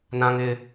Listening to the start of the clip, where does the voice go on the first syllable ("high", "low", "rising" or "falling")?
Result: high